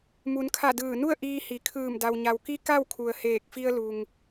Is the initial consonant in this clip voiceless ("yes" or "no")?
no